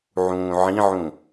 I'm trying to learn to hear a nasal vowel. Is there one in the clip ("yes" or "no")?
yes